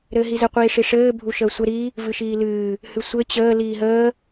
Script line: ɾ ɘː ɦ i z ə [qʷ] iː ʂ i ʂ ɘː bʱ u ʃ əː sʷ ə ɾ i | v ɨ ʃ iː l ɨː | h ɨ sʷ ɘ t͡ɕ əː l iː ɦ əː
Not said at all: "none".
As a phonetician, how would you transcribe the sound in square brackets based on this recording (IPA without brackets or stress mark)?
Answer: qʷ